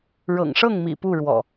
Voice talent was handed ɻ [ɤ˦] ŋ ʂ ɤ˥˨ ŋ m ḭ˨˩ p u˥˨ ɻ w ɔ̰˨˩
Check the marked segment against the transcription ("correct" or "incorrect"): incorrect